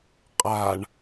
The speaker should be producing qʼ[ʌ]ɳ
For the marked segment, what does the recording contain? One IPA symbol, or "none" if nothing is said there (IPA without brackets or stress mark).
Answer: a